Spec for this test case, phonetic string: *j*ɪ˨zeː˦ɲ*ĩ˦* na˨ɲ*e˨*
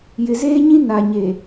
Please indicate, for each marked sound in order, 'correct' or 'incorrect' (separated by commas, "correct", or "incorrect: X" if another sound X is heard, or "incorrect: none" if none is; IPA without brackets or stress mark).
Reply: correct, correct, correct